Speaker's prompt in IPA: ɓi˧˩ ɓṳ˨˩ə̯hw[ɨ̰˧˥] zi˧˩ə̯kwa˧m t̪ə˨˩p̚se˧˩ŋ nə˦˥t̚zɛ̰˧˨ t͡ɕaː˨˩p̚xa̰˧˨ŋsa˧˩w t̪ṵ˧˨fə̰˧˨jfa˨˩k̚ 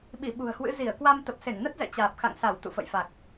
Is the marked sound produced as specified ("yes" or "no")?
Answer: yes